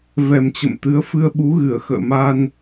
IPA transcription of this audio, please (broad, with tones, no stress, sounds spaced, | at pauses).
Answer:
v ɛ˨˩ m t͡ɕ ə̰˧˨ m t̪ ɨ˨˦ ə̯ f ɨ˧ ə̯ ɓ u˨˦ ɣ ɨ˧˩ ə̯ x ə̰ː˧˨ m a˧ n